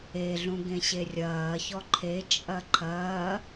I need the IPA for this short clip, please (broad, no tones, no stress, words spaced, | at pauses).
eɮũ ɡẽɕerʲɐːçɔ ǃʰet͡ʃʼɐ ǃʰɐː